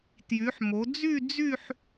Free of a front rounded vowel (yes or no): no